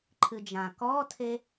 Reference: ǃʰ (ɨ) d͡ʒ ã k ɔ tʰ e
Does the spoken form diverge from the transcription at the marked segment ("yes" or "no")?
no